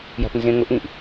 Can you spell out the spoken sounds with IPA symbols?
j a̤ p n z ẽ ŋ ʊ ʔ ĩ ʔ

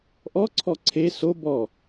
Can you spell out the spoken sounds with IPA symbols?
ʔ ɔ ǀʰ ɔ ǀʰ e s o b ɔ

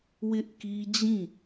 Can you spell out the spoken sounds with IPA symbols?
w ɪ˦ ʔ k i˦ d͡ʑ ĩ˦˨

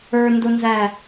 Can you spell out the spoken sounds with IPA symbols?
ə˞ n d ʊ n z æ

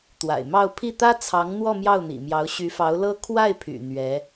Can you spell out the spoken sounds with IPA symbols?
t̪ w a̰˨˩ ɪ̯ m ɑ˥˧ ʊ̯ pʰ i˥˩ t̪ ä˥ t͡sʰ ɑ˧˥ ŋ n̪ w ɔ˥˧ m j ɑ˥˩ ʊ̯ n̪ ḭ˨˩ m j ɑ˧˥ ʊ̯ ɕ y˧˥ f ɑ˧˥ ʊ̯ l ɤ˥ kʰ w a˥˩ ɪ̯ pʰ y̰˨˩ n̪ ɥ ɛ˧˥

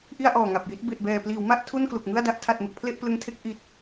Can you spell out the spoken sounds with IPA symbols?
ʔ i˥˩ a̯ ʔ ɔː˨˩ ŋ a˨˩ p̚ j i˦˥ t̚ b e˨˩ ʔ b ɛː˨˩ p l iː˩˦ w m a˥˩ ʔ tʰ u˥˩ n k l u˨˩ k̚ ŋ ɯ˥˩ a̯ d a˥˩ ʔ tʰ a˨˩ t̚ m ɯ˨˩ k̚ pʰ l e˥˩ ʔ p l ɯ˧ ŋ tʰ e˥˩ k̚ ʔ i˨˩ t̚

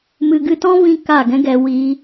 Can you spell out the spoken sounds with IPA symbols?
m ɨ˨ ɡ ɨ˧ t ɔ̃˦ v ĩ˦ k a˦˨ ɡ ɛ̃˦ ɡ ɛ˧ w iː˧

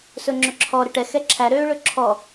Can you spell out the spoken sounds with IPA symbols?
s ɵ ŋ͡ǁ ɵ ǁʰ ɔ ɾ ɘ ʈ ɛ x ɛ ǁʰ æ ɾ øː ɭ ɵ ǁʰ ɔ

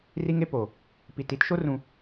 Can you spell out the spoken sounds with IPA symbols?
r i˦ ŋ e˦ p o˨ | p i˨ t i˦ t ʃ o˦ r ũ˨

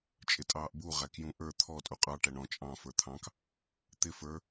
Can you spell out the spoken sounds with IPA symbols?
t͡ʃʼ ɪ tʼ ɑː ʔ b u ʁ æ k j ũ ʔ ə˞ t̪ʰ ɔ tʼ u qʼ ɑ ʈ æ ɳ ɔ̃ t͡ʃʼ ɑ̃ f ə˞ t̪ʰ ɑ̃ k | t̪ ɪ f ə˞

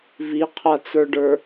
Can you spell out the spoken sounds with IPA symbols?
v i qʰ a t͡s ə˞ ɖ ə˞

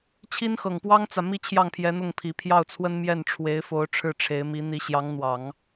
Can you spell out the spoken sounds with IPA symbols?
t͡ɕʰ i˥ n x ɤ˨˩ ŋ p w ɑ˥ ŋ t͡s ä˨ m i˥ t͡ɕʰ j ɑ˥˩ ŋ pʰ j ɛ˧˥ n̪ ʊ˥˩ ŋ pʰ i˨˩ pʰ j ɑ˥˩ ʊ̯ t͡sʰ w ə˥ n m j ɛ˥˩ n ʈ͡ʂʰ w e˧˥ ɪ̯ f o˧˥ ʊ̯ ʈ͡ʂʰ ɻ̩˥˩ ʈ͡ʂʰ e˧˥ ɪ̯ m i˧˥ n̪ i˧˥ ɕ j ɑ˧˥ ŋ n̪ w ɑ˨˩˦ ŋ

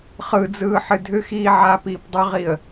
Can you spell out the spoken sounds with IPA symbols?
χ ɯ d͡z ɯː ħ ɨ dʱ ʏ x iː ʕ aː p iː p dˤ ʏ ʁ i ə̯

